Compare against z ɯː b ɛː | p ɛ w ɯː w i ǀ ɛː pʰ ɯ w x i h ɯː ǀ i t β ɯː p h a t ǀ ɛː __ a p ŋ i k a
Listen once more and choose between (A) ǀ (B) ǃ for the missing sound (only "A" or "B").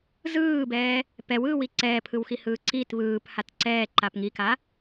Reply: B